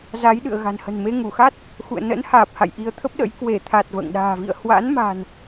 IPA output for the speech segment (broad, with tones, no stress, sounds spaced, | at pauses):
z a˨˦ j ɗ ɨ̰˧˨ ə̯ ɣ a̤˨˩ n h ə̤˨˩ n m e˧ ŋ u˧˩ x a˦˥ t̚ | x ṵ˧˨ ə̯ n ə̰˧˥ n h aː˨˩ p̚ h a̰˧˨ j ʔ i˧ ə̯ t̪ʰ ə˦˥ p̚ ɗ ə̰˧˥ j k w e˧˩ t̪ʰ a˨˩ t̚ v ə̰ː˧˨ ŋ ɗ a̤ː˨˩ v ḭ˧˨ ə̯ h w a̰˧˥ n m a̤˨˩ n